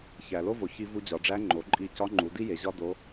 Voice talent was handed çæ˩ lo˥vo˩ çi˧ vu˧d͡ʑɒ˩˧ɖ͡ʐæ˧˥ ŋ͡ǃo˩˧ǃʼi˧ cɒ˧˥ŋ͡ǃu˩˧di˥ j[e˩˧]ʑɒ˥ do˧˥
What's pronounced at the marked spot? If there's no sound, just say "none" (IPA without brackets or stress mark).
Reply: e˩˧